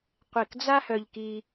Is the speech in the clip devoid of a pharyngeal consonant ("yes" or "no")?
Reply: yes